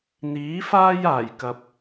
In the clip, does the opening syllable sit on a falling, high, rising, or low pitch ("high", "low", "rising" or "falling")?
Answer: rising